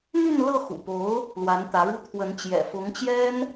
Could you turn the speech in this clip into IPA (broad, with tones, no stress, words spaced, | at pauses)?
n̪y˥˧nlɤ˥˩ xṵ˨˩po˧˥ʊ̯ | lwa˧˥nt̪ä˧˥ɻu˥ t̪ʰwə˧˥n t͡ɕjɛ̰˨˩fʊ˧˥ŋt͡ɕjɛ˥n